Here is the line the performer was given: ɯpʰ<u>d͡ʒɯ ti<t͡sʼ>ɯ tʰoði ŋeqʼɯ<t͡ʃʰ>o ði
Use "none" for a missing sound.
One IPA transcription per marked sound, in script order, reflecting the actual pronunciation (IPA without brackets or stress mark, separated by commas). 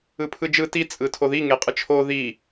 ɯ, t͡sʼ, t͡ʃʰ